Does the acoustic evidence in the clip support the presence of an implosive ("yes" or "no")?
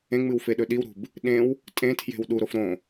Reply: yes